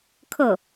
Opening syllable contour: falling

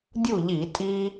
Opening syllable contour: falling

